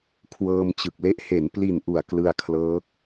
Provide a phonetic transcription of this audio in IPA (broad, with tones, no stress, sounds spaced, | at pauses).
kʰ w ɤː˧ m t͡ɕ ɯ˨˩ k̚ l e˦˥ ʔ h e˩˦ n p l i˨˩ n ʔ u˨˩ a̯ k l ɯ˧ a̯ kʰ l ɤː˦˥ k̚